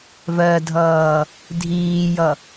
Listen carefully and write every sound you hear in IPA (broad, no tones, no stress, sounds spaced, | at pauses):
v ɜ dʱ ʌː | dʱ iː j ʌ